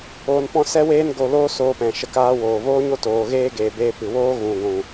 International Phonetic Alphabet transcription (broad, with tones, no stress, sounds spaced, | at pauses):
oː˧ n p ɔ̃˦ s ɛ˦ w eː˦ n ɡ o˧ l oː˦ s oː˧ p ɛ̃˨ ʃ ə˧ k aː˦ w oː˨ v oː˦ ɲ o˦ t oː˨ ɣ eː˧ ɡ eː˨ b eː˧ p ɨ˨ w oː˦ ɣ ũ˨ ɡʷ ũ˨